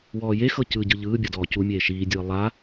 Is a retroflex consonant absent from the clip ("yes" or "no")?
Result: yes